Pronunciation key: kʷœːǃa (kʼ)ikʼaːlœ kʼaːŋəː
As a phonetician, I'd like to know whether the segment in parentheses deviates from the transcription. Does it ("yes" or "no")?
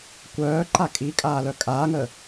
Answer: no